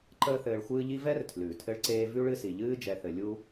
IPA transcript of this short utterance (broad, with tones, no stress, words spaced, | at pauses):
ǃəː˦θɘː˨ɭxʷɨː˦ʎi˥ vɛ˥r tʰlʉː˩tʰɘ˦ɭǀeː˦ vʉ˥ɭɨ˦ si˩ ʎɨː˦ d͡ʒɛ˨θɘ˨ lʲu˥